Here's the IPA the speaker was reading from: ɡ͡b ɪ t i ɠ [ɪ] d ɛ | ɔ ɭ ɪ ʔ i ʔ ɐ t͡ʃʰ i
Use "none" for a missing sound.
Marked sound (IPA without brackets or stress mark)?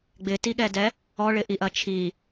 ɛ